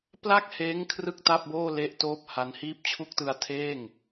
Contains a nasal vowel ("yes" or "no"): no